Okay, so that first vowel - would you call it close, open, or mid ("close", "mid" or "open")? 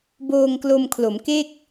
mid